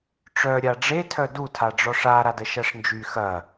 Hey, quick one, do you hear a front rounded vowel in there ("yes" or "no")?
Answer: yes